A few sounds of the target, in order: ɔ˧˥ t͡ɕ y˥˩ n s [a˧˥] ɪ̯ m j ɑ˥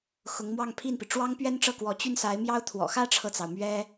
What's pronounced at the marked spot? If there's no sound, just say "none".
a˧˥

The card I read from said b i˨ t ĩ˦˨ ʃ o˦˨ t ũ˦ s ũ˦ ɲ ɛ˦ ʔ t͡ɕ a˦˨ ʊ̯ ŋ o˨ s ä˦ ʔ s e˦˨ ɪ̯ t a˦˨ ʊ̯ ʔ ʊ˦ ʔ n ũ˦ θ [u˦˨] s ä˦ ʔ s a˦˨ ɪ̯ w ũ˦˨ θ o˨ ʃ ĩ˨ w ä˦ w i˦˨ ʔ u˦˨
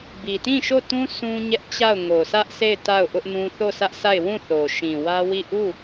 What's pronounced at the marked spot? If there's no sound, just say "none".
o˦˨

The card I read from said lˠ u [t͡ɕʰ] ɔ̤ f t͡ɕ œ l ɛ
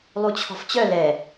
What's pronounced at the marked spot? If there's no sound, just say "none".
t͡ɕʰ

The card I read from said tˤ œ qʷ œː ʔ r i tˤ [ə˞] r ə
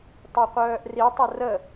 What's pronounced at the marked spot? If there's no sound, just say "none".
ə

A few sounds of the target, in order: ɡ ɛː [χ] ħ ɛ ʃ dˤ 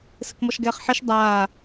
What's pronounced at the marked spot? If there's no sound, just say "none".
χ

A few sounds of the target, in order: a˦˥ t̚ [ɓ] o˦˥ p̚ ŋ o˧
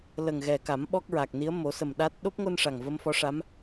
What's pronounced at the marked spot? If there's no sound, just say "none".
ɗ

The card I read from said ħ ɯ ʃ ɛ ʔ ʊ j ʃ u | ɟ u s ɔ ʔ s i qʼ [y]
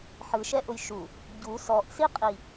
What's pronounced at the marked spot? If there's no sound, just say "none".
i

